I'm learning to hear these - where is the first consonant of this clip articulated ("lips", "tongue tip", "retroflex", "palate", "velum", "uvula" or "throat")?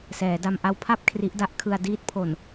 tongue tip